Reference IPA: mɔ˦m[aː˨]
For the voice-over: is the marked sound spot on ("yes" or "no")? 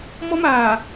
yes